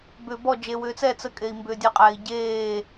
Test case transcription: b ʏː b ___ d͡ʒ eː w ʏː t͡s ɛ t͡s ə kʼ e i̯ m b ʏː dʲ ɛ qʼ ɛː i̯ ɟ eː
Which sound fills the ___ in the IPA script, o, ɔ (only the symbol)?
ɔ